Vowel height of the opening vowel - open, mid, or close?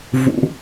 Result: close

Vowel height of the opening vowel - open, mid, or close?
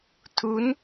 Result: close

